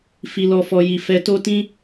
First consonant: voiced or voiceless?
voiceless